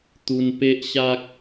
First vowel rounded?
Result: yes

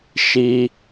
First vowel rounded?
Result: no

